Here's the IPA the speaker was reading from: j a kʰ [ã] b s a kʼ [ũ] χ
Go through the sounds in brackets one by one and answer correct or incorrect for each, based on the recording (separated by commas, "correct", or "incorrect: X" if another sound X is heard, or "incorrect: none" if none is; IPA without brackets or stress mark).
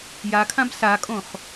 correct, incorrect: õ